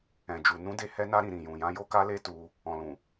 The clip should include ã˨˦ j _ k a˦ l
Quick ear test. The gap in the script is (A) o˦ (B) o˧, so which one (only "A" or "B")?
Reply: A